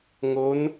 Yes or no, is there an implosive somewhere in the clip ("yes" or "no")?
no